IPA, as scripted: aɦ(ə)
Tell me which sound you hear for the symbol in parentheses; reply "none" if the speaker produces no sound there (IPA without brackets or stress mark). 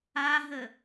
ə